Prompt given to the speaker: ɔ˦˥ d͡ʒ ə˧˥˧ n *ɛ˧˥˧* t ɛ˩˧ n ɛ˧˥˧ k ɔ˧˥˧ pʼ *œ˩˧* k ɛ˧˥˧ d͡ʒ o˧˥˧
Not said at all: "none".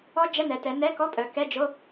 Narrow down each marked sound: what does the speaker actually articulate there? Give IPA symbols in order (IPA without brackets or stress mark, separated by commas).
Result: ɛ˩˧, œ˩˧